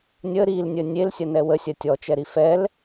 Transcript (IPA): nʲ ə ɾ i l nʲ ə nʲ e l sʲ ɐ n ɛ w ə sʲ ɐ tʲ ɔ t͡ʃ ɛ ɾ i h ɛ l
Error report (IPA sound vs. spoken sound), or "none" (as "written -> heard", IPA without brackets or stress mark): h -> f